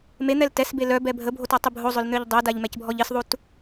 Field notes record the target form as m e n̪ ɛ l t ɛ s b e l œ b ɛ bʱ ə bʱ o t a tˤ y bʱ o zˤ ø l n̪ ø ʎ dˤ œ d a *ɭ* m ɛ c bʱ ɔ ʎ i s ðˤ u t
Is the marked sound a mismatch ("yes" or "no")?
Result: yes